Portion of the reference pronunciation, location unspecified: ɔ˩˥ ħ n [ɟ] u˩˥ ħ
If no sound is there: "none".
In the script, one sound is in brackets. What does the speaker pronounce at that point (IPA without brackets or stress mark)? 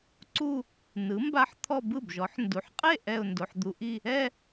d